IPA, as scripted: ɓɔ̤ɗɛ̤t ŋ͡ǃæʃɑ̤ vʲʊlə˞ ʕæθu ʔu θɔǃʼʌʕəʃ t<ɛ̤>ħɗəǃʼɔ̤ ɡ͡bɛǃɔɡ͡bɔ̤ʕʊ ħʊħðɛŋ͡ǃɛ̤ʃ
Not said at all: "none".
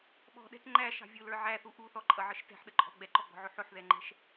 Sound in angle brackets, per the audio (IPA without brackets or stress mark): ɛ̤